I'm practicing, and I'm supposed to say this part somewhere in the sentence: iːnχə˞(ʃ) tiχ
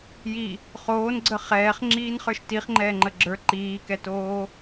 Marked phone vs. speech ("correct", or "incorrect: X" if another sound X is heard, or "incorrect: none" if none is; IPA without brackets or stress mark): correct